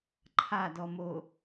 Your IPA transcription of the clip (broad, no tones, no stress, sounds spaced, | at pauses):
ǃʰ a d ɔ m o